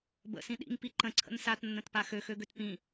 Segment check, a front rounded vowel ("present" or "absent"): present